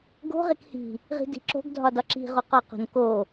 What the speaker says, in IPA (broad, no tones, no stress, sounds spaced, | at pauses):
ɡ o̤ ʁ e k h i̤ | ʁ i̤ d i̤ ǁ o̤ ɡ dʱ ɒ d ɒ ǁ i̤ ʁ o q ɒ q o̤ n k o